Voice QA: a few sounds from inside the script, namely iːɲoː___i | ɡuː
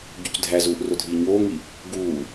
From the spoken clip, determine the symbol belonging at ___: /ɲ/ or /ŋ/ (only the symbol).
ŋ